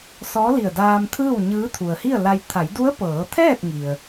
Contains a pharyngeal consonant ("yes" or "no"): no